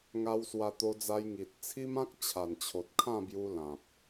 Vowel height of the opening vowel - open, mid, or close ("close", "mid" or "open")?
open